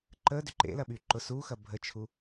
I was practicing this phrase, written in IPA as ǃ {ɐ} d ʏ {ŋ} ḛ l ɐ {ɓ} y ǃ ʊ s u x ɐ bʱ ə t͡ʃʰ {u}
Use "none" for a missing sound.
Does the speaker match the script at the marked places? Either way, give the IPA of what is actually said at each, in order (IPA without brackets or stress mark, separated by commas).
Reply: ə, ǃ, ɓ, u